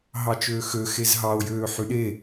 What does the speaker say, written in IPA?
ɦɑt͡ʃøːxøxez ɦɑo̯ jøːħyɗe

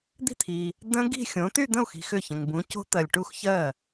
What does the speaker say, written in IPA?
d̪i̤˥˩t̪ʰi˨ | də̃˦˥ ɡi̤˥˧xʲõ˨˥ ty˥˧d̪ə̃˥˩u̯xi̤˨ xʏ˥˩çə̃˨ŋ bũ˨˥co̤˦˥t̪ɜ˨lʲʈu˥˧x çɜ˥˩

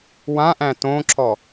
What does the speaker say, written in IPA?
wãʔæ̃ tõǁɔ

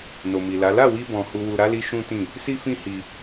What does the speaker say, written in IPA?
no˨mi˨la˨˦ la˦˨wi˧bɔ̃˨ hu˨wu˨ɾa˨˦li˧ ʃũ˦tĩ˦˨ | si˦fĩ˦hi˧

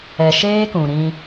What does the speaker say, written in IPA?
ɛ˨ʃeː˦ kũ˨ɾĩ˦

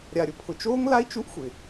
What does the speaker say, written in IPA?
ɾʲa˨ɾʲʊ˨pʰʊ˨ t͡ʃoː˦ŋla˦i̯ t͡ʃu˦ʔxʷɪ˨

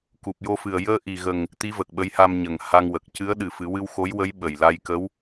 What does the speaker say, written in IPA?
ku˨˩p̚jo˧fɨ˨˩ə̯ jəː˧ʔi˨˩ɣə˨˩ŋ | t̪i˧˥və˨˩k̚ɓə˧˥jha˧m ɲə˨˩ŋha˧ŋwə˨˩k̚ cɨ˧˥ə̯ɗɨ˨˩fɨ˨˩˦wɨ˧w xo˧˥jwə˧˥j ɓə˨˩jla˧jkə˧˥w

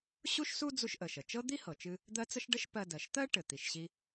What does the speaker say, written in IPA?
ɕu˥ʃsu˥ d͡zu˧ʃʔə˩ʃə˩t͡ʃɤ˥ d̪i˥hɤ˩t͡ʃɨ˧ | d̪ɜ˥ t͡sə˥ʃ ɖə˥ʃpɜ˧ dɜ˩ʃt̪ɜ˥ ʈɘ˩t̪i˩ʃɕi˧

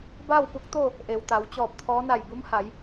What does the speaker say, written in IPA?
baː˥˨wpu˧˥k̚t̪o˥˨ | ʔe˩wt̪a˩˧wt͡ɕɔː˧˩p̚t̪ʰɔː˧˥ na˧˩jbu˧˥mha˩˧j

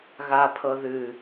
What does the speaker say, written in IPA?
ɣapʰɤ ðɨ

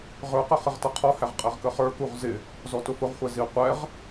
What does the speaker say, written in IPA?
ʁə˞qə χɪʁtʌqʰɔhæʁ qʼɛʁkəχə˞kuʁ zɪ | zɔtʊfʊʁχʷɛ zi qʷɛʁ

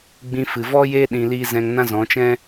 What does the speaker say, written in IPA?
ɡ͡bĩ˧fɨ˨ vɔ˦jeː˦ ɗĩ˧liː˦ zɛ̃˧ŋnã˦zɔ̃˨˦t͡ʃɛ̃˦

